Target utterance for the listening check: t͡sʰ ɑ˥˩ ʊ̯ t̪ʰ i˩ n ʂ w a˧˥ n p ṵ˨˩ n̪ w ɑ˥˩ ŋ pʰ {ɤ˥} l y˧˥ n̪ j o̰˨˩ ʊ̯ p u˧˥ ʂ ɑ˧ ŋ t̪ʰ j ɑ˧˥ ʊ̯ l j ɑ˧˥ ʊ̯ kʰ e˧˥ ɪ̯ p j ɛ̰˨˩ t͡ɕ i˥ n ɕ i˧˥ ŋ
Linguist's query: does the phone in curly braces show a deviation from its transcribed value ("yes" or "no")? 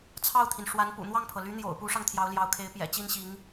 yes